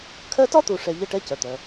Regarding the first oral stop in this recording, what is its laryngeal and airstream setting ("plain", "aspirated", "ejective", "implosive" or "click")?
aspirated